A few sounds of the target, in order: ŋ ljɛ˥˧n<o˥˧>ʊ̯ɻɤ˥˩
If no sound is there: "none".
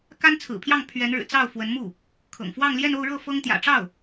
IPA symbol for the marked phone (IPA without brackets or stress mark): o˥˧